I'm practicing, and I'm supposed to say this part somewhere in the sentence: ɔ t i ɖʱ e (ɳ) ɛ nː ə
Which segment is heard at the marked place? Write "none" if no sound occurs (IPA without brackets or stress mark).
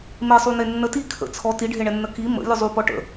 ɳ